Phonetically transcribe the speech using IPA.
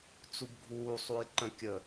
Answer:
t͡s u b ɡʱ uː sˤ u j ǃ ə̃ kʲ ə

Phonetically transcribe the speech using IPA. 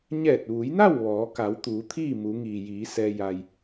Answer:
ɲ ɛː˧˩ t̚ ʋ u˩˧ j n a˥˨ w ʋ ɔː˩˧ k a˩˧ w t̪ uː˩˧ t̪ʰ iː˥˨ m u˩˧ ŋ iː˩ j iː˩˧ s ɛː˧ j a˧ j

